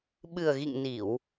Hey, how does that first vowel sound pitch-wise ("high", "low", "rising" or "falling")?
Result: low